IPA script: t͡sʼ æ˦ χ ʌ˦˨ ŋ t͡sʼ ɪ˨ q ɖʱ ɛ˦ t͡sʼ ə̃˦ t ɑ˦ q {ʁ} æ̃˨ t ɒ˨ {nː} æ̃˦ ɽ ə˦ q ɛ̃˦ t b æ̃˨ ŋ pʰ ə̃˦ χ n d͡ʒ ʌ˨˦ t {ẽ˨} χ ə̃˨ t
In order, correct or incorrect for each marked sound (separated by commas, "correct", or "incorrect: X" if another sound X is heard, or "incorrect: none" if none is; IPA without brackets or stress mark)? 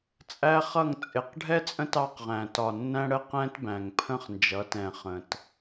correct, correct, incorrect: ɛ̃˨